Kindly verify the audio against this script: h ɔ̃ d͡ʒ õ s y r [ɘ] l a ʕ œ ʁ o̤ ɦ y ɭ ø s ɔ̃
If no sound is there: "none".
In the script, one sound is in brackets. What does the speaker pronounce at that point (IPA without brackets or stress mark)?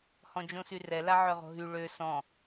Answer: ɛ